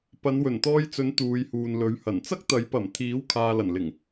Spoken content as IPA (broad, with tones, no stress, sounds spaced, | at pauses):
p ɐ˨˧ n w ɵ˨˩ n t̪ ɔː˧ j t͡s ɵ˨˥ n t̪ uː˨˧ j h uː˨ n l ɵ˨˥ ɥ h ɐ˨˩ n t͡s ɐ˥ k̚ t̪ ɐ˨˥ j p ɐ˨˩ m t̪ʰ iː˨˥ w kʰ aː˨ l ɐ˨˩ n l ɪ˨˩ ŋ